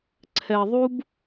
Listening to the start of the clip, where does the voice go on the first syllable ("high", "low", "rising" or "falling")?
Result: low